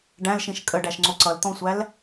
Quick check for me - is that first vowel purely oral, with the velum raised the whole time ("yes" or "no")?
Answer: no